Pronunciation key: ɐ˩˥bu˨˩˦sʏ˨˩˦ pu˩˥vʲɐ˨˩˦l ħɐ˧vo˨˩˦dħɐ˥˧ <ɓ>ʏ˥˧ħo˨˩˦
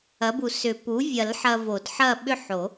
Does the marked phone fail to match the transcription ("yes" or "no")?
no